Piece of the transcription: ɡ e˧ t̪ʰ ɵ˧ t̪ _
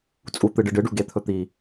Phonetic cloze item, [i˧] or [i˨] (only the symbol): i˨